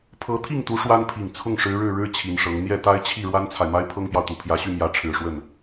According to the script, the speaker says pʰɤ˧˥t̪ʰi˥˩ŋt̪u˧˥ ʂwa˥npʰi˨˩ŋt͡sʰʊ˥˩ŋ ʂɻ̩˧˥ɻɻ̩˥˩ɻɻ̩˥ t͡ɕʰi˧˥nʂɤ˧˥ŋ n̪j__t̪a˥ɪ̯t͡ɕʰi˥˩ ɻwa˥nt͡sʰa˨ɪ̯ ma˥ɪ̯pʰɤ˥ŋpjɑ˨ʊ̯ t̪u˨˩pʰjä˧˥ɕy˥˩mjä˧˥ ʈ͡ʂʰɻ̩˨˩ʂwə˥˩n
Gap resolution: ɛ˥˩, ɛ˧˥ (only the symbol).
ɛ˥˩